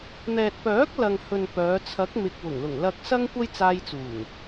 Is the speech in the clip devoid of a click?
yes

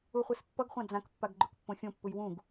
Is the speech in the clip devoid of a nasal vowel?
no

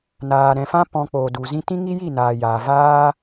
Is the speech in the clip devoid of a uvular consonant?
yes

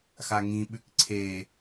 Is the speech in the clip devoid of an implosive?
no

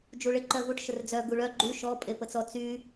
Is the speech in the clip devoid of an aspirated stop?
yes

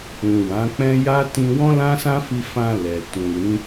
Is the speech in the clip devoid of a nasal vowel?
no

